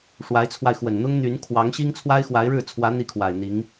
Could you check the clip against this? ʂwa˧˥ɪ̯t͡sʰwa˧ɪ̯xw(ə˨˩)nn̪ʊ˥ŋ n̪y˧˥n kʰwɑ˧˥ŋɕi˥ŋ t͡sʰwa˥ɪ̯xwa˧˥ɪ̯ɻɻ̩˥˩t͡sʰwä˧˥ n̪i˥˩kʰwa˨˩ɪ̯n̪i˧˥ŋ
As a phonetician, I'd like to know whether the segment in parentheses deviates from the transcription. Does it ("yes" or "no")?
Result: no